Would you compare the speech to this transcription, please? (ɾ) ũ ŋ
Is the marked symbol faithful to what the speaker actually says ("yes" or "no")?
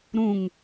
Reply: yes